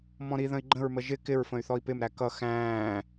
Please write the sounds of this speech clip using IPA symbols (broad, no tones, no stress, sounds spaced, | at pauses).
m ɔ̃ ɾ i ð ə̃ i̯ ɡ͡ǃ ə̃ ɹ m ə ʒ ɪ k ɪ ɹ f ə̃ y̯ θ ɔ i̯ p ɪ m ɾ æ k ʌ x æ̃ː